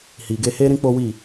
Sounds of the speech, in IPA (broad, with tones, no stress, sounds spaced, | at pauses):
h i˨ ɡ e˧ h e˦ ɾ ĩ˦ k͡p o˦ w i˦˨